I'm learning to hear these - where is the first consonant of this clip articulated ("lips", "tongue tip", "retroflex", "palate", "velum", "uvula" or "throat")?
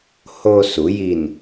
throat